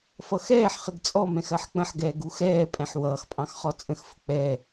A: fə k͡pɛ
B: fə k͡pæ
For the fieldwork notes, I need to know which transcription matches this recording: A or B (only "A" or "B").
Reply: A